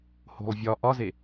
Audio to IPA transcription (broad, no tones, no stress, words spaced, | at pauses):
ho̤lˠvʲɒ ʔɒze